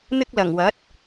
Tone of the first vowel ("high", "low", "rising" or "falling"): high